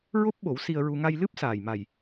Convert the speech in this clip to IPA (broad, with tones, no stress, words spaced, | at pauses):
ɹo˦˥p̚ɓo˨˩˦w si˧ə̯ɹu˧ ŋa˧jlɨ˦˥p̚saː˨˩j ma˨˩j